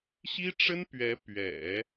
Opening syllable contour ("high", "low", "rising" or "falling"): high